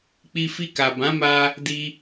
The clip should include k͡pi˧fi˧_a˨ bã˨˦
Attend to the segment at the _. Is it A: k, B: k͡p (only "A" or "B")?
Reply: A